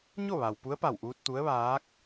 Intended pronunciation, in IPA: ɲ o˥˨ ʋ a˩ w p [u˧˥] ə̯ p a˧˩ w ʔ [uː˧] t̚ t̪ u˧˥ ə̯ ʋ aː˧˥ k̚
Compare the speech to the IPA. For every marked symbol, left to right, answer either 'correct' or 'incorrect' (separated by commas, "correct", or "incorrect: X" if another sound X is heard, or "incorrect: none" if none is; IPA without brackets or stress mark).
correct, correct